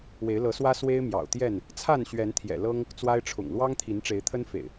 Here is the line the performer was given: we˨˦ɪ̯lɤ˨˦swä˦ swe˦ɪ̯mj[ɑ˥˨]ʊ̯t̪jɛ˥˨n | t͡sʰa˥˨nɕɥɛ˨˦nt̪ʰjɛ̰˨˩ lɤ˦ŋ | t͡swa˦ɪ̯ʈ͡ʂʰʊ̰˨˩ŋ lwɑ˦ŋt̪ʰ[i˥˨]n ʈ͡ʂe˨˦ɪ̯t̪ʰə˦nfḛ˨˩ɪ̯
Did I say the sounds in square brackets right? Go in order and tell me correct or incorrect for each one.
incorrect, incorrect

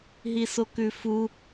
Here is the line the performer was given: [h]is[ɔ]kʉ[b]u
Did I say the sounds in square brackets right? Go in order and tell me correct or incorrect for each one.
incorrect, incorrect, incorrect

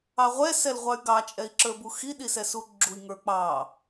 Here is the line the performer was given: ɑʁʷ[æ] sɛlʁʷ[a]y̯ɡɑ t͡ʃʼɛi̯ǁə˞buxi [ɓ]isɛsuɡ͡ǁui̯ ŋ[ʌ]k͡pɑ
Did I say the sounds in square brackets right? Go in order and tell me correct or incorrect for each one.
incorrect, incorrect, incorrect, incorrect

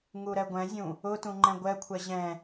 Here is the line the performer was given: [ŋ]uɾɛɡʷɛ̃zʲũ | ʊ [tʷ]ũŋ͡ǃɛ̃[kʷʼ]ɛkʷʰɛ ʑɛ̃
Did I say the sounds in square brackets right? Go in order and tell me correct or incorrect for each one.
correct, incorrect, incorrect

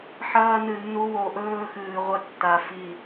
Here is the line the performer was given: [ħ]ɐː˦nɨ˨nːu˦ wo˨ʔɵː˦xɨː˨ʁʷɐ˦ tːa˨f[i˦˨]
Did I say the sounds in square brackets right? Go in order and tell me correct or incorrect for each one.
correct, correct

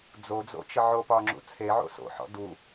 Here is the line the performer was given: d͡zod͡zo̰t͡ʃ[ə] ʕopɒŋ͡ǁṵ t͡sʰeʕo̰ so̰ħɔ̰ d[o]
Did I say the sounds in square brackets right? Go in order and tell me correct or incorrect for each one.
correct, incorrect

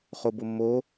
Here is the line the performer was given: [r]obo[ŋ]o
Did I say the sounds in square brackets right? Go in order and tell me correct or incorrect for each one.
incorrect, incorrect

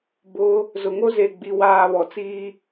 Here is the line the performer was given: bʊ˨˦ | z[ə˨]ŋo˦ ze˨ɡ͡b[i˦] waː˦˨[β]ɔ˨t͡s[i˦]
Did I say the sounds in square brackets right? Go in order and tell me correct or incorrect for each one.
incorrect, incorrect, correct, incorrect

